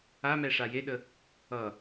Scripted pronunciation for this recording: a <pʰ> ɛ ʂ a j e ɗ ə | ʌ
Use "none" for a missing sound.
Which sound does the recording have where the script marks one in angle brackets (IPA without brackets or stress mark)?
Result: m